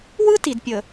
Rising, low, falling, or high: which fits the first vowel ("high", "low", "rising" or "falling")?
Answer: high